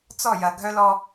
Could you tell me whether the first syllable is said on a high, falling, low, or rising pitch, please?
falling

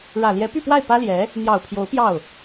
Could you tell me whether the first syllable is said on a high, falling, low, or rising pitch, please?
low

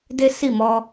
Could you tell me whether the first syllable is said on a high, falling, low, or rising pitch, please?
high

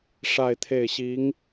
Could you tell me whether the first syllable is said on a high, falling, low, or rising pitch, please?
falling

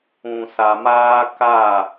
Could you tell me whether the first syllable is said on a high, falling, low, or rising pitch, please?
low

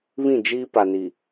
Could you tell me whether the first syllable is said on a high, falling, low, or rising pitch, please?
falling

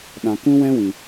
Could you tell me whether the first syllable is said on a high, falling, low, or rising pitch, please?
low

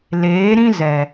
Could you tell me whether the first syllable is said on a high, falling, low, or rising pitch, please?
rising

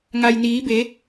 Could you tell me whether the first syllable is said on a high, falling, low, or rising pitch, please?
low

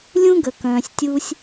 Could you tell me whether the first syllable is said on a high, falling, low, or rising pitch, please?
high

